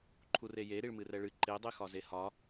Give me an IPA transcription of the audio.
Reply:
ǃʰ u r e j e ɾ i ɭ m ɨ r ɛ ɭ ɨ ǃ e dˤ e x ɒ z e h ɒ

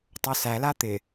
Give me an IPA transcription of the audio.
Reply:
tˤ o s æ l a t̪ ɪ

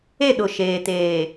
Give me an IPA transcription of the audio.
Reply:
e˦˨ ɗ ʊ˨ ʃ eː˨ t eː˨

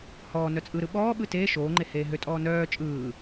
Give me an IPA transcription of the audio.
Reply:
h ɔː n œ t͡sʼ ɯ ɾ ɯ ɓ ɔː ɓ ɯ t eː ʃ oː ŋ͡ǃ e h eː ɦ ø tʼ ɔː n œː t͡ʃʼ ɯː

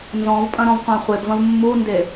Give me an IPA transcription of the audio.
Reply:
n z ɔ̃ v pʼ ɐ̃ ɾ ɔ̃ v qʷ ã χʷ e b v ɐ̃ v mː u n d e

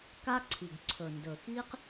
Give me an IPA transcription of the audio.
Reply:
k a˥ ǀʰ i˩ ɡ ǀʰ ɵ˩ n d ɵ˩ x i˥ q

